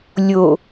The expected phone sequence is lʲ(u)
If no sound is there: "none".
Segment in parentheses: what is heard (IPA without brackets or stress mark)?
o